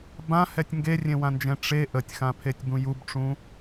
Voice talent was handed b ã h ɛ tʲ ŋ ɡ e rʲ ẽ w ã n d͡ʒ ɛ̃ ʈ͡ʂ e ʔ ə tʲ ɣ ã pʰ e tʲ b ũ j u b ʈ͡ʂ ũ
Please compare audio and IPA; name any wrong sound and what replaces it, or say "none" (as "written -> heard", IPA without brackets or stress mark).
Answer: ɣ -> x